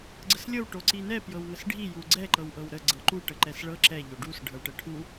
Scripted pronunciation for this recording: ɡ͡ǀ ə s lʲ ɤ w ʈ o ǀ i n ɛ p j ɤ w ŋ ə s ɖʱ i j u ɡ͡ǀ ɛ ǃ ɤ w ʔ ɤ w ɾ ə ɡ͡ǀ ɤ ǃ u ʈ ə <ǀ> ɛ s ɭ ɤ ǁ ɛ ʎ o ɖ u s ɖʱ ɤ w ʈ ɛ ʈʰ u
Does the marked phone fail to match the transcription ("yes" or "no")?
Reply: yes